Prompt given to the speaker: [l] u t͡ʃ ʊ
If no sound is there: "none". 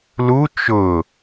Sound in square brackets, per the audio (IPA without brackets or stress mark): l